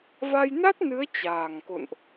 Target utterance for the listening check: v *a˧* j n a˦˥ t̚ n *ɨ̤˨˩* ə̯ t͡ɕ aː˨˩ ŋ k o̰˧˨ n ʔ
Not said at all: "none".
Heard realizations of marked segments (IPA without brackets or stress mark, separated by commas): a˧, ɨ˨˦